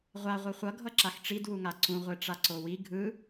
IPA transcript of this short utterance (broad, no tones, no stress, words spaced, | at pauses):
ʁʷa ʁʷɯχʷʌ ɡʱʌǁaxʈ͡ʂid wuŋaǀũ ʁʷeʈ͡ʂaǀowi ɡʱɯ